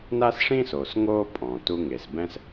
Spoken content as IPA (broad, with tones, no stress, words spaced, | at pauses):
na˥sʂĩ˥so˩s ŋo˥pʼɔ̃˩ tu˧ŋe˩sbɛ̃˥s